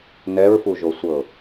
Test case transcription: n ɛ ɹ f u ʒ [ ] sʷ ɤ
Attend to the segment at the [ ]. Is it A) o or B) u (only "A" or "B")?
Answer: A